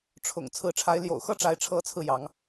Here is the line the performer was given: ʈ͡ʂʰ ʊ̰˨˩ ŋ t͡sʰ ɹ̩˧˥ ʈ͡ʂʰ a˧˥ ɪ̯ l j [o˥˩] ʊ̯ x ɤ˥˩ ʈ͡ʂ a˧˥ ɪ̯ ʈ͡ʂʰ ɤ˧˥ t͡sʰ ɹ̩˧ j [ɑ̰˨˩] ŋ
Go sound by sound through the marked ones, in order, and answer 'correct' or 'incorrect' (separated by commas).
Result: incorrect, incorrect